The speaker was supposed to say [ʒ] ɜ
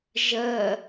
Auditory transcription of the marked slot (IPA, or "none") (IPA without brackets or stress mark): ʒ